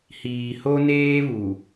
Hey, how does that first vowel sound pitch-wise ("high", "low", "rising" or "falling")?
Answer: low